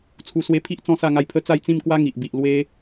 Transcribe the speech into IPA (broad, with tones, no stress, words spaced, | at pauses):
t͡sʰu˧swe˧pʰi˦ʔ t͡sɔ̃˥˧sa˥˧ ŋa˧jpʰə˦ t͡sa˥˧jt͡sĩ˥˧mkwa˦ ŋi˨ʔbi˨ʔ lwe˦